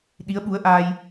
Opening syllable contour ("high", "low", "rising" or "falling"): rising